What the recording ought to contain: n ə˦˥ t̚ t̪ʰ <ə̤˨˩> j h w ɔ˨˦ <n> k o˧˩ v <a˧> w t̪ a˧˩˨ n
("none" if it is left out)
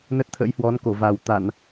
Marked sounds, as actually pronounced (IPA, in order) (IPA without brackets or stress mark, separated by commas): ə̰˧˥, n, a˨˩